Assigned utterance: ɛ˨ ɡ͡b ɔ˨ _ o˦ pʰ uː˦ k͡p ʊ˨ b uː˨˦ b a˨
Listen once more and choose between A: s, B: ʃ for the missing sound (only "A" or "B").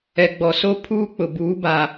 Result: A